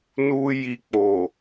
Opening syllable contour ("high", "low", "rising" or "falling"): high